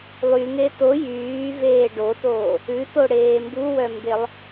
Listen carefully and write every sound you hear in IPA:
lˠ y ŋ e t o j yː v eː ɖ o t oː | ʉ t o ɽ eː m b u w œ m b e lˠ

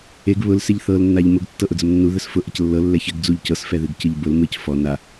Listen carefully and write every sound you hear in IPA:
e ɡ β ʊ l s e ʎ θ ɤ l nː a ʎ m ʊ ɡ tː ɤ ʔ ʊ d͡z ə m nː u ð ə s f ʊ ʔ ə c lː ɤ lː ɛ ç ɘ ɡ d͡z u ʎ c ɤ s f ɛ ð ɨ ɡ c ɨ ʎ b ʊ l m ɨ c f ɔ n a

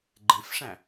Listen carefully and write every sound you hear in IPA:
ɡ͡ǃ ẽ f ʂ æ̃

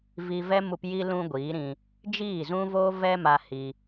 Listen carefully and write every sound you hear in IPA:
v i˧ v ɛ˦ m u˧ p j i˧ l ũ˧ ɡʷ iː˨˦ ɾ ĩ˧ | d͡ʒ iː˦˨ z ũ˦ v oː˦ v ɛ˦ m a˧ h i˧

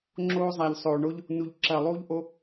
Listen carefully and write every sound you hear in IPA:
ŋ͡ǁ oː˦ zˤ a˨ ʎ sˤ oː˨ ɳ o˦ ʎ | n u˨ ʎ ǁ ɐː˨ lˠ uː˦ ʎ ʔ o˦

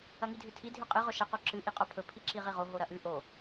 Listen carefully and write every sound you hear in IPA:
ɐ ŋ i dʱ ʉ tʰ i dʱ ʉ qʼ ɨ ʁ ɵ ʃ ɐ q o ǁ ɨ ʔ i qʼ o pʰ ɵ pʰ i ǁ i ʁ i ʁ o ɦ o ɾ ɐ ʔ ʉ ʔ o

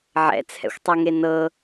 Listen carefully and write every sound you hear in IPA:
ʕ ɛ̰ t͡sʰ ɛ̰ xʷ tˤ ɛ ŋ e n ɤ

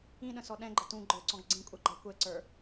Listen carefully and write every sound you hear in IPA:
ĩ ɗ ə̃ s ɔ ɗ ɛ̃ ɡ͡ǃ ə t ũ ɡ͡ǃ ə˞ ǀ ɔ̃ ɡ ɡ͡ǀ ĩ kʷʼ ɛ ɡ͡ǃ æ kʷ ɛ ǀ ə˞

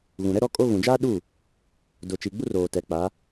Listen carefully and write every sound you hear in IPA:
ɣ ũ˨ ɾ ɛ˦ ɾ ɔ˦ kʼ o˦ ɣ ũ˨ d͡ʒ aː˦ ɗ u˦˨ | d ʊ˨ t͡ʃ i˨ ɡ͡b u˦ r oː˨ t ɛ˨ k͡p a˨˦

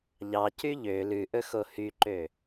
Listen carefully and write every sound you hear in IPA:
ʎ ɑ c y ʎ ø l ʉ ʔ ɵ x o h y ǃ ø

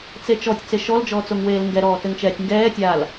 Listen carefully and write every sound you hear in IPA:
t͡s e t͡ʃ ɔ tʲ t͡s e ʃ ɔ l d͡ʒ ɔː t͡s o ŋ w eː l ŋ ɡ ɛ ɾ ɔː t ɘ ŋ t͡ʃ ɛː tʲ ŋ ɡ ɛː tʲ aː l

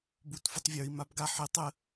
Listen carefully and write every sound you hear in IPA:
b u t f u tˤ vʲ ə˞ i̯ m a b ɡ a ħ e tˤ ə

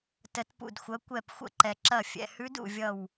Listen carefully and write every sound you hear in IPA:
t ə˧˥ t p ṵ˦˨ d xʷ ɐ˧˥ kʷ ɛ˦˨ p xʷ ə̰˦˨ ǃ ɛ˨ ǁ ɐ˦˨ fʲ ɛ̰˨ h ʉ˧˥ d ṵ˦˨ vʲ ʌ˦˨ w

